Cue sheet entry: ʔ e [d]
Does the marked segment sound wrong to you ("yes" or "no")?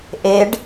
yes